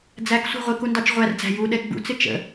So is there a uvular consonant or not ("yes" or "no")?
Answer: yes